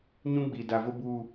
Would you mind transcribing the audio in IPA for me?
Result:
ɲ ũ˦ ɡ͡b i˨ d a˨ v ʊ˦ b u˦˨

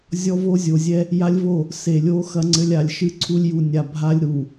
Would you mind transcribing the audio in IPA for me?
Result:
zʲ ɔ˦ v o˦ zʲ o˨ zʲ ɛ˦ | j a˦ lʲ v o˦˨ | s e˨ lʲ o˦ x ɐ˦ ŋ͡ǀ ɘ˦ lʲ a˨ lʲ ʃ ɨ˦ ǀʰ u˦ lʲ j u˨ nʲ a˨ bʱ a˦ lʲ ɾ u˨

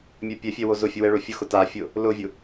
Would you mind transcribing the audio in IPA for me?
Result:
mʲ ɛ pʲ ɛ fʲ ɛ w o z ʊ fʲ ʊ w ɛ ɭ o fʲ ʊ x ʊ t a fʲ ʊ | l ʊ vʲ ʊ

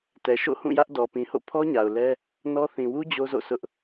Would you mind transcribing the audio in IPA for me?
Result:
t ɛ˨ ʃ o̰˦˨ h ũ˦˨ j ä˦ ʔ d ɔ˨ p ĩ˨ h o̰˦˨ pʰ ɔ˦ ɲ a˨ ʊ̯ l ɛ˦ | n ɔ˦ θ ĩ˨ w u˦ d͡ʑ o˦ z o̰˦˨ sʰ ʊ˦ ʔ

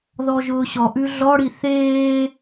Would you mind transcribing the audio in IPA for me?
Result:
ð ɔ ʒ ʊː ɕ ɔ ʔ ʉ ɮ ɔ ɽ i θ eː

